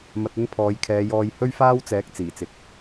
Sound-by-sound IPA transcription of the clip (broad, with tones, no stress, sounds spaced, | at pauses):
m ɐ˧ t̚ ɵ˥ n pʰ ɔː˨˧ j kʰ ɛː˨˧ j ɔː˧ j h ɵ˥ ɥ f aː˥ w t͡s ɛː˨˥ k̚ t͡s iː˨˩ t͡s ɪ˨ k̚